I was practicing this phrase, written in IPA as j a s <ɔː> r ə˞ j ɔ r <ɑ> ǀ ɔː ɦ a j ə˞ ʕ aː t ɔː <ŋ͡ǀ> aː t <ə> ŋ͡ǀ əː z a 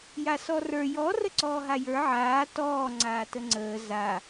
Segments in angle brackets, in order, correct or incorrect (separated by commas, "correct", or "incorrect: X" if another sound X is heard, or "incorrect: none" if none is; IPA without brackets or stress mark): incorrect: ɔ, incorrect: ə, correct, correct